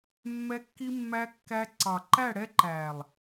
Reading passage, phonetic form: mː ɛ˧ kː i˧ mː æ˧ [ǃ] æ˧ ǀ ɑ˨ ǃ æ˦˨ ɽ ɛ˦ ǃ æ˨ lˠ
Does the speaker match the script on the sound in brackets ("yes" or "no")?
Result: no